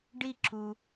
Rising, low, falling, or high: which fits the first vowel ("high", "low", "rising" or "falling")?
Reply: falling